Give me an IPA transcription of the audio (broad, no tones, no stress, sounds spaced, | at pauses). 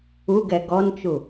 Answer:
u ɡ ɛ ɡ ɔ n t͡ʃ u